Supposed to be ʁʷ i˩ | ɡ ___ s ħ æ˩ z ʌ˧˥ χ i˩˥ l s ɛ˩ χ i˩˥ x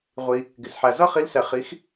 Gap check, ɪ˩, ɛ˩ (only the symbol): ɪ˩